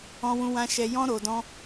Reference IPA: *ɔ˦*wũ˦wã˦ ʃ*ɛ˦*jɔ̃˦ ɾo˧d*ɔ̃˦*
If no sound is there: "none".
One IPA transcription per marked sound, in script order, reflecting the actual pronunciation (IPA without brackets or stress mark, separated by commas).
ɔ̃˦, ɛ˧, ɔ̃˦